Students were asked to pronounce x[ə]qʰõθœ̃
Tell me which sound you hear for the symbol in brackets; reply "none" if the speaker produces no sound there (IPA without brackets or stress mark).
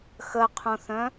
ə